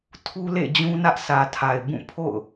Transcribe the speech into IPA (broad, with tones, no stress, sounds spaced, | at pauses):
tʰ u˦ l ḛ˦˨ d͡ʑ ũ˦ n ä˦ ʔ sʰ ä˨ tʰ a˨ ɪ̯ b ũ˦˨ pʰ o̰˦˨ ʊ̯